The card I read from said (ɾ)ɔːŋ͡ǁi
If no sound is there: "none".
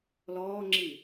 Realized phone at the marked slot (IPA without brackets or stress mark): l